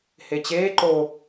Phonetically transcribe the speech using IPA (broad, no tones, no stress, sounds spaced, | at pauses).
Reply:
h e t͡ɕ eː ǃ o